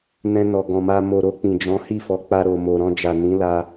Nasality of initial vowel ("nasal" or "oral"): nasal